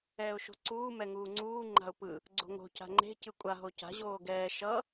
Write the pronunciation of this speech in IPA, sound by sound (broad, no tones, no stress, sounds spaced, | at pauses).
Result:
ɛː ʊ̯ ʃ o̤ ǀ uː m ɛ ŋ uː ŋ͡ǀ uː ŋ͡ǃ a̤ ʊ̯ p ɯ | ɡ͡ǀ o̤ ŋ o̤ c a̤ ŋ͡ǃ e̤ c ɯ kʷʼ a ɦ o c a̤ ʑ oː ɡ ɛː ʃ ʌ